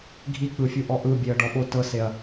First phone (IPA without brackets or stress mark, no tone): ɡʱ